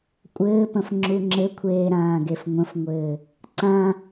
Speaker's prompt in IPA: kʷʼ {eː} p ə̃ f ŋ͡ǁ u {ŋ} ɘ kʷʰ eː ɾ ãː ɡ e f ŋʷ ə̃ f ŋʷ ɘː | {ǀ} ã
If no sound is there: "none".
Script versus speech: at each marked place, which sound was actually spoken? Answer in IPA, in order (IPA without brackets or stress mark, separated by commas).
ɘː, ŋ͡ǁ, ǀ